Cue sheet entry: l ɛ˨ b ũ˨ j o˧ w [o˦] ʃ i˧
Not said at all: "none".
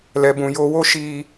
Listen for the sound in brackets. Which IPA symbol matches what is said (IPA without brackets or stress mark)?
o˦